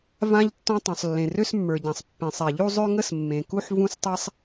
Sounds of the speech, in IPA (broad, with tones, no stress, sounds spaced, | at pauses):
v ã˥ ʎ tː ɔ̃˥ tˤ ũ˩ sˤ lː ẽ˩ r ø˥ s mː ə˞˩ ɟ ã˩ sˤ pː ẽ˩ sˤ ɛ˩ ʎ u˥ zˤ ø˥ ŋ ə˥ s mː ẽ˩ k u˥ ħ v ũ˥ s tˤ ɛ˥ sˤ